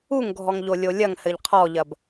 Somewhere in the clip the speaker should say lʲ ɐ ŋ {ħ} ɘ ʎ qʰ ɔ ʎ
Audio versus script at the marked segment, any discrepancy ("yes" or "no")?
yes